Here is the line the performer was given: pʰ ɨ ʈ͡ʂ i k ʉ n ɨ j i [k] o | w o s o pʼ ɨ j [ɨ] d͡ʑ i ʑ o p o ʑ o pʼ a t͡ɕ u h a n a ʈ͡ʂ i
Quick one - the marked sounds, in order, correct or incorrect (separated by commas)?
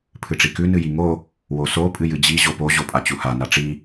incorrect, correct